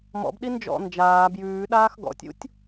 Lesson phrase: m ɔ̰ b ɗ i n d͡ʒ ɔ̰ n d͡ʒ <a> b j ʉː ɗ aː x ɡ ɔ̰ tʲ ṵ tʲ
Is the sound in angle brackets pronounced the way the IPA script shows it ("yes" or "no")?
no